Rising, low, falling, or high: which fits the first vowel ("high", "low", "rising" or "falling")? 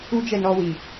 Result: high